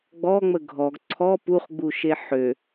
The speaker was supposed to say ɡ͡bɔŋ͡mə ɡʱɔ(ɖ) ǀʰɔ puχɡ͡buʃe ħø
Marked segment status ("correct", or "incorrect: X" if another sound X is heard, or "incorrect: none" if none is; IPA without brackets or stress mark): incorrect: ɡ